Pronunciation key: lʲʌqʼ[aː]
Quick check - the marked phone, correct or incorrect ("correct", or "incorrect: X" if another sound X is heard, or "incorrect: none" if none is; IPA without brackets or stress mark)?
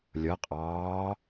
incorrect: ɑː